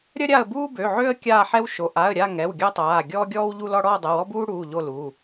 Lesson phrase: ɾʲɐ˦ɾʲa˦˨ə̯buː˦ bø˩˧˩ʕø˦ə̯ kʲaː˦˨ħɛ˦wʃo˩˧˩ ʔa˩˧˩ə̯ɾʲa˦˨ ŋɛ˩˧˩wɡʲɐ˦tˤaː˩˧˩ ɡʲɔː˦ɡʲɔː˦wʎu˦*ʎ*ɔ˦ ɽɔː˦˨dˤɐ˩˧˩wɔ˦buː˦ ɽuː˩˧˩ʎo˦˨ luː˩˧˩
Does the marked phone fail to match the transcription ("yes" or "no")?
yes